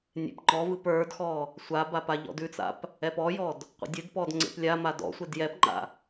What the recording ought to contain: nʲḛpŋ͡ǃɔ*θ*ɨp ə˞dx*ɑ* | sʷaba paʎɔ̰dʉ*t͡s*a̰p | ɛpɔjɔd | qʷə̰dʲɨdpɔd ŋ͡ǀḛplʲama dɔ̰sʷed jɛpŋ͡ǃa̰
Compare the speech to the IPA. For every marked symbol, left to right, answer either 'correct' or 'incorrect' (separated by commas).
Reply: incorrect, incorrect, correct